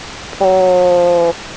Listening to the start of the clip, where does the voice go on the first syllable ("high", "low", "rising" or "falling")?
low